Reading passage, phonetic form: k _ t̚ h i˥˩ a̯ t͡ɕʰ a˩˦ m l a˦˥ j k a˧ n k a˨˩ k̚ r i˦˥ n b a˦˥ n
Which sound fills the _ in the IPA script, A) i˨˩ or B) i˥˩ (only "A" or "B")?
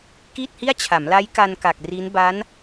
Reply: B